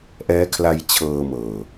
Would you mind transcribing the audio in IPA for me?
ʔ ɛː˦˥ kʰ l a˧ j t͡ɕʰ ɤː˧ m ɤː˨˩

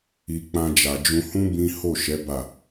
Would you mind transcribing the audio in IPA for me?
i˧ k͡p ã˧ d͡ʒ a˨ d͡ʒ ũ˧ h ũ˦ b ĩ˦ h o˦˨ ʃ ɛ˨˦ b a˦˨

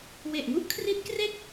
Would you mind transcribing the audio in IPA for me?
w e˨˩ ʔ ŋ u˥˩ ʔ kʰ r i˦˥ t̚ k r e˥˩ k̚

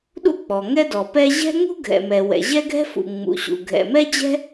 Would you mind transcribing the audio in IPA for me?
ɗ ṵ˥ k͡p ɔ˩ ŋ ɛ˥ d ɔ˩ p ɛ˥ ʑ ɛ̤˥ ŋ ṳ˥ ɡʱ ɛ̰˩ m ɛ˩ w ɛ̰˩ ʑ ɛ˥ ɡʱ ɛ̤˥ f ṵ˩ ŋ͡m ṵ˩ ɕ ṵ˩ ɡʱ ɛ̰˩ m ɛ˥ d͡ʑ ɛ̤˥

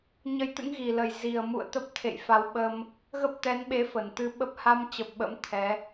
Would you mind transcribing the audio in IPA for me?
ɲ ə˧ j t̪ ɨ̰˧˥ ŋ ɣ i˨˩ l ə˨˩ j z i˨˩ ə̯ m ṵ˧˨ ə̯ t̪ ə˦˥ p̚ t̪ʰ ḛ˧˨ j f a˨˦ w ɓ ə˧ m | ɣ ə˦˥ p̚ t̪ ɛ˨˦ n ɓ e˨˦ f ə˧˩ n t̪ ɨ˧ ɓ ə˦˥ p̚ h a˧ m t͡ɕ ə˨˩ p̚ ɓ ə̰˧˥ m t̪ʰ ɛ˨˦

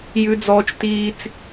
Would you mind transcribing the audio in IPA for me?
j ʉ˦ d͡z ɔː˦ t͡ʃ t iː˦ t͡s

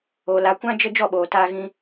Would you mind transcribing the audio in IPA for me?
o˨ l a˨ kʷ ã˦ d͡ʒ ə˧ d͡ʒ ɔ˦˨ ɓ oː˨ t aː˧ ɣ ĩ˧

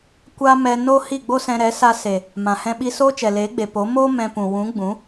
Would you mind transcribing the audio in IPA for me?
kʷ a˦ m ɛ˧ n o˦ h i˦˨ ɡ͡b o˦ s ɛ̃˧ ɾ ɛ˨˦ s a˧ s e˨ | m ã˨ h ɛ̃˦ ɓ i˦ s oː˦ t͡ʃ ɛ˨ l eː˨˦ ɡ͡b e˨ p o˨˦ m oː˦ m ɛ̃˧ p ũ˨ w ũ˨˦ ɡ͡b ũ˨˦

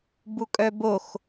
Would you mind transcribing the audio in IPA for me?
b u kʼ œ b o x

